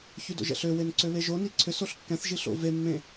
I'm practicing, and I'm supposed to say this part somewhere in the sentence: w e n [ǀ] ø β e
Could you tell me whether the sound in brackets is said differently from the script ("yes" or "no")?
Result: no